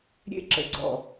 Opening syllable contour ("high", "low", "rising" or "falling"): high